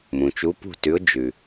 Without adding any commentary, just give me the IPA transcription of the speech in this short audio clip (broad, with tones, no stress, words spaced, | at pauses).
mũ˨t͡ʃu˧˥pṳ˥˩tʉ˧˥ʊ̯ d͡ʒʉ˨